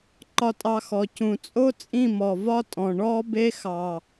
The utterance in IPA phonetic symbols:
ǃ ɒ˧ tʼ ɑ˧ x ɔ˨ c ũ˨ t͡sʼ o˦ t͡sʼ ĩ˦˨ m ɔ˨ v ɒ˦ tʼ ɔ̃˨ ɳ ɔ˦ b e˦ x ɑ˨

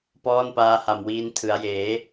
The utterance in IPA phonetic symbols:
p ɔː˥˩ n p aː˦˥ h a˨˩ m w iː˦˥ n tʰ ɯ˩˦ a̯ j eː˩˦

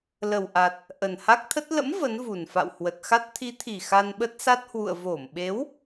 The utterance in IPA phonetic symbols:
l ə˨˩ w ʔ a˨˩ t̚ | ʔ ə˨˩ n h a˦˥ k̚ t̪ʰ ə˦˥ t̚ l ə̰˧˥ m v ə˨˦ n v u˨˩ n f a̰˧˨ w h w ə˨˩ t̚ x a˦˥ t̚ t̪ʰ i˨˦ t̪ʰ i˨˩ x a˧ n ɓ ə˦˥ t̚ s a˦˥ t̚ h w ṵ˧˨ ə̯ v o˧˩ m ɓ e˨˦ w

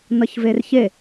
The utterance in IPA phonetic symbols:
n ʌ ç v e r ç e

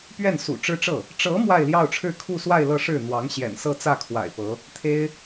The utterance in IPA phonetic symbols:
p ɥ ɛ˥˩ n s ṵ˨˩ ʈ͡ʂ ɻ̩˥ ʈ͡ʂ ɤ˥˩ | ʈ͡ʂ ɤ˧˥ m w a˥˧ ɪ̯ l j ɑ˥˧ ʊ̯ ʈ͡ʂʰ ɻ̩˥˧ kʰ u˥˧ s w a˥˧ ɪ̯ l ɤ˥˧ ʂ ɻ̩˥˩ n̪ w ɑ˧˥ ŋ ɕ j ɛ̰˨˩ n s ɤ˥˧ t͡s ä˥˩ kʰ w a̰˨˩ ɪ̯ p ɤ˧˥ | t̪ʰ e˥ ɪ̯

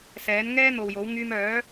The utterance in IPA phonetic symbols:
s ɛː˨˥ n ŋ ɛː˥ n̪ o˨ w j o˨˥ w ŋ yː˧ m œː˨˥

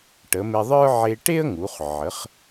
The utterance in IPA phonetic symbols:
ʈ ə˩˧ m e˧ ðˤ ə˞˥ ʕ e˧ ʈ e˥ ə̯ ŋ u˩˧ χ ʕ ə˩˧ χ

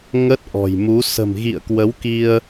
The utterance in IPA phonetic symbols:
ŋ ə˦˥ t̚ ʔ ɔ̤˨˩ j m u˨˦ s ə̤˨˩ m ɣ ḭ˧˨ ə̯ k w ə˨˦ w k i˧ ə̯

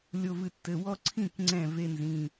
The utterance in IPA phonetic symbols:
lʲ o˧˩ v ɨ˧˩ tː ɘ˩˧˩ w ɔ˦ ǀʰ ĩ˥˩ k ŋ͡ǀ ɛ̃˥˩ v e˦ n z ĩ˩˧˩

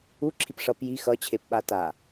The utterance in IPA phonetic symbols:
u ǁʰ i p ʂ ʌ p j i x ʌ t͡ɕʰ e p ɓ a t a

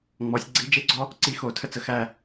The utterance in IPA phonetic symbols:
ŋ͡m ɔ˩˧ sʲ ɡ͡ǀ i˧ d͡ʒ e˥ ɡ͡ǀ ɔ˧ | ǀ i˥˧ x o˧˩ tʰ ə˥ t͡s ə˩˧ x æ˧˩

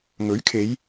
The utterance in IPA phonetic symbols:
ŋ ɵ˨˥ ɥ kʰ e˨˧ j

